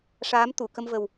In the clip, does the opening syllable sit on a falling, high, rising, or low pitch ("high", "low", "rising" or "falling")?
rising